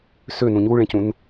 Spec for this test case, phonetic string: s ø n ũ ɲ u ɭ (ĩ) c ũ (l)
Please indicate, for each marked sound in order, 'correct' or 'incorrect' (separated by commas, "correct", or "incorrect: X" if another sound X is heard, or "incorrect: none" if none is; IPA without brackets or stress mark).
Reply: incorrect: ẽ, incorrect: n